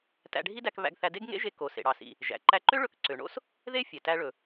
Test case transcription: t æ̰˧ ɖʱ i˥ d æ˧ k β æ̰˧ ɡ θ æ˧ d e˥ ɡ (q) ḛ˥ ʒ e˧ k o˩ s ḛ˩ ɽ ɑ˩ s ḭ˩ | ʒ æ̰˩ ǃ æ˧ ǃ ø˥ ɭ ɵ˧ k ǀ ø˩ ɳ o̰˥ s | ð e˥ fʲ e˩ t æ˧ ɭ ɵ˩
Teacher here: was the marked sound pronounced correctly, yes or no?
no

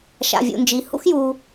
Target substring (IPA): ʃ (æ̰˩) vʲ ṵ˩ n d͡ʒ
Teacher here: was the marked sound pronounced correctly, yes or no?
no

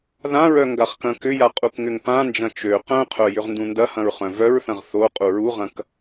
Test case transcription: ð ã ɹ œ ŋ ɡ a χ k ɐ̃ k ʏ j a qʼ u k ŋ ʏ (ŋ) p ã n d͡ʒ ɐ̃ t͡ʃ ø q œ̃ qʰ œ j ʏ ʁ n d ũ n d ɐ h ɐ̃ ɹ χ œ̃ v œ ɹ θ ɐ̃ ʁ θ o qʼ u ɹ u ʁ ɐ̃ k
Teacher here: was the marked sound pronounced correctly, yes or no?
yes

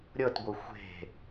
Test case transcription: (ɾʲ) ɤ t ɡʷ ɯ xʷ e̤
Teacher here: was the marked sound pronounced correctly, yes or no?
yes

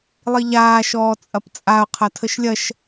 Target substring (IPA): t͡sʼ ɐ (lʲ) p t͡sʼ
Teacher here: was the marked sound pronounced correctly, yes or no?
no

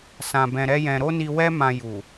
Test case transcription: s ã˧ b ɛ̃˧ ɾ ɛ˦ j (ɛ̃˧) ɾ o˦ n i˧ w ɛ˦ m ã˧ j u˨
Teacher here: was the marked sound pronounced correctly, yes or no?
yes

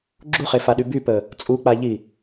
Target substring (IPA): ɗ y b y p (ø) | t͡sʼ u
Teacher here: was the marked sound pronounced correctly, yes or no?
no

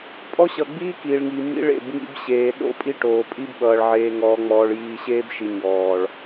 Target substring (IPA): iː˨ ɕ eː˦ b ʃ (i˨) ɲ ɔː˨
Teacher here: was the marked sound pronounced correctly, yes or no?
yes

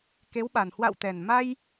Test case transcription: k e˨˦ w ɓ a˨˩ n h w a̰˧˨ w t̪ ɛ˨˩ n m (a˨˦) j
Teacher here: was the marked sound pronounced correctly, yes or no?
no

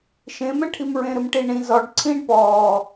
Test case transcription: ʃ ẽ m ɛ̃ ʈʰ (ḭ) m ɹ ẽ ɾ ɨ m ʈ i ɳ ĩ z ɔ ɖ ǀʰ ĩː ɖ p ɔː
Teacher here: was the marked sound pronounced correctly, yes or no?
no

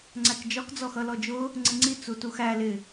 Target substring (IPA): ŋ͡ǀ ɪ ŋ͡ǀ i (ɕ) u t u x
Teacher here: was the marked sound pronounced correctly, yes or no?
no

